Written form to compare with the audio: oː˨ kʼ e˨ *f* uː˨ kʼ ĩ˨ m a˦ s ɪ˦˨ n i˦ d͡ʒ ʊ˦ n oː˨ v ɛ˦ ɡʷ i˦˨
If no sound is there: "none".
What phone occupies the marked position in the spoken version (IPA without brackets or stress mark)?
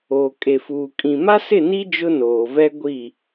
f